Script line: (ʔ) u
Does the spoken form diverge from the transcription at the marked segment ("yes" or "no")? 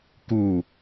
yes